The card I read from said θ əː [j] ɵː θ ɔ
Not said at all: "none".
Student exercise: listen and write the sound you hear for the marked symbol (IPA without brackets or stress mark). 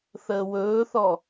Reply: w